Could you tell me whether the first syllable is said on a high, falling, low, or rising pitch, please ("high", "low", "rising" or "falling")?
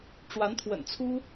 rising